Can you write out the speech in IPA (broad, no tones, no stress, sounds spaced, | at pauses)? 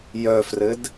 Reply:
j œ f r ɘ d